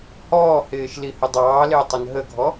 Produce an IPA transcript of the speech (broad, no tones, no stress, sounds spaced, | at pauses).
h ɔː h ɪː ʃ l i h ə dˤ ɑː l ɪː tˤ ə n ɦ ə ɡʱ ɔ